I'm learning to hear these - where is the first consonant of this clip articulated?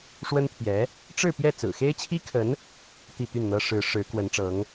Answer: retroflex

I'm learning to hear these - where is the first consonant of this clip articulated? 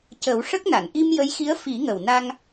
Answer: palate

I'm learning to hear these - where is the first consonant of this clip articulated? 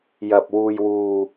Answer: palate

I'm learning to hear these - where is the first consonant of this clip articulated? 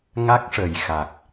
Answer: velum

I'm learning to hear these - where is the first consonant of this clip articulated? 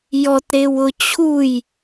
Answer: palate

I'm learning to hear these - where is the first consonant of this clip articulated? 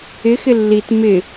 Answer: velum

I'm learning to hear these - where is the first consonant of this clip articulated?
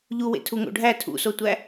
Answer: palate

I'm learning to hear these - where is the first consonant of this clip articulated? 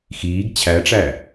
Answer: velum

